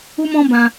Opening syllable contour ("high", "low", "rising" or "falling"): high